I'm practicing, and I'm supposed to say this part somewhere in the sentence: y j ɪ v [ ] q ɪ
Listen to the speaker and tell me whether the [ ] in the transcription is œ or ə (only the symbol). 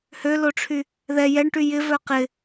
œ